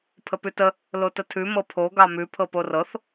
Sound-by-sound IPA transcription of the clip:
pʰ ə p ʉ t ə | l o t ə tʰ ʉ m ɤ pʰ o ɡ ɑ m ʉ pʰ ɤ p o r ɤ θ

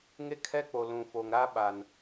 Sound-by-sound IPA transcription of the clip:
ŋ e˦ kʰ ɛ˦ k͡p o˨ l ũ˨ f o˨ ŋ ɾ a˦ ɓ a˨ n

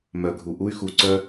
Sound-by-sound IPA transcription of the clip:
m œ˨ ɡʱ u˨ ʔ u˦ y̯ x u˨ ǀ œ˦

